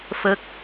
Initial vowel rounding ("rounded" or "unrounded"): unrounded